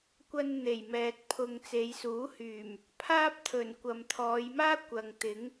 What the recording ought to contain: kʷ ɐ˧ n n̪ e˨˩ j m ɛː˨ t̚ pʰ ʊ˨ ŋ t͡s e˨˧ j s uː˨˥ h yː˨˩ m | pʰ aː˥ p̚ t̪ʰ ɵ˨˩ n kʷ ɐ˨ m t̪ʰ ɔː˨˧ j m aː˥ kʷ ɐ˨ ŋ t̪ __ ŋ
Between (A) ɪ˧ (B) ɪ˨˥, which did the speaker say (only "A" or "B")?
B